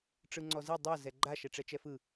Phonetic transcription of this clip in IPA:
ʈ͡ʂ ɯ ŋ͡ǀ ɔ z i dˤ ɤ z ɛ ɡ͡ǃ a ʃ ɛ ʈ͡ʂ ɛ t͡ʃ ɛ f ɯ

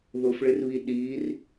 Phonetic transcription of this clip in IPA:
ð ʊ f ɭ ɪ r β i ɗ i r

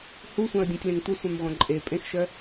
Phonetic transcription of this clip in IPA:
h u sʷ œ̃ ə̯ dʲ ũ tʲ l ẽ ŋ tʷ ə sʷ œ̃ m ʁʷ œ̃ ǃʼ e pʼ ẽ x ʃ œ

